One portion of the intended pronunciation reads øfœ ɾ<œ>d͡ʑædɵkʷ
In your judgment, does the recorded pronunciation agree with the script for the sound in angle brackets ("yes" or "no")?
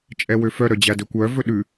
yes